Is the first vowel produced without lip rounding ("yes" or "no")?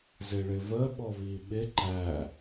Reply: yes